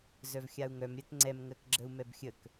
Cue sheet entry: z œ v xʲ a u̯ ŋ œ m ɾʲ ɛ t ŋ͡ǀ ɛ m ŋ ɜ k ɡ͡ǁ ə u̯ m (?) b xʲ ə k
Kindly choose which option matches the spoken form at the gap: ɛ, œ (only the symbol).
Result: ɛ